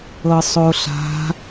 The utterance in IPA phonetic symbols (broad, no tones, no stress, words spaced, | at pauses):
ɤsˤoɬa̤